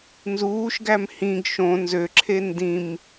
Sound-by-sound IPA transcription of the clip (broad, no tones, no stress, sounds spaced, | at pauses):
n z uː ʃ ɡ æ m h ĩ ɡ ʃ õ n z ø ǁʰ e n d ĩ m